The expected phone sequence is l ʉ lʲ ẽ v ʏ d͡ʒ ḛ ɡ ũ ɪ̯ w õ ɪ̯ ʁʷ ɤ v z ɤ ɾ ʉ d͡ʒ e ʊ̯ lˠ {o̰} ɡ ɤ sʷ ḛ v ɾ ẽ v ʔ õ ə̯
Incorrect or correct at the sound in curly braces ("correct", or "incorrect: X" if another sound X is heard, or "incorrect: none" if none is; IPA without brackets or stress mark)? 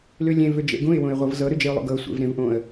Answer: correct